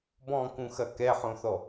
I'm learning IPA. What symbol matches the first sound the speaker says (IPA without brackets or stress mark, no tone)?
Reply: b